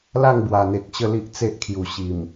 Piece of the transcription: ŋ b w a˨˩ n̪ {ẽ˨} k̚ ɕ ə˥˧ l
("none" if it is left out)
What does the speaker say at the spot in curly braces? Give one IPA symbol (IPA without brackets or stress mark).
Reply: e˨